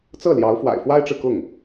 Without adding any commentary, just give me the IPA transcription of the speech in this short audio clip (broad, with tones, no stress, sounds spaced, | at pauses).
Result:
t͡s ɤ˥˩ l j ɑ˧˥ ʊ̯ f w a̰˨˩ ɪ̯ f w a˥ ɪ̯ ʈ͡ʂ ɻ̩˨ k ʊ˥˩ ŋ